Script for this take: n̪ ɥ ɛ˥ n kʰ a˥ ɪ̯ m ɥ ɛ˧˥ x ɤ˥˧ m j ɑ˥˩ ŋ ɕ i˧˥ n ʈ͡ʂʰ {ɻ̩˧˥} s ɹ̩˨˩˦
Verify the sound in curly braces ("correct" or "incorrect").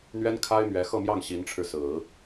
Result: incorrect